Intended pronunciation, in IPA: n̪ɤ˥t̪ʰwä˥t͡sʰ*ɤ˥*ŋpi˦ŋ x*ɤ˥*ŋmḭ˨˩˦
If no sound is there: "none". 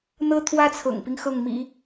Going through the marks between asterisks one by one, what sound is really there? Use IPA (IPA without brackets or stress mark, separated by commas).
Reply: ɤ̰˨˩, ɤ˥˩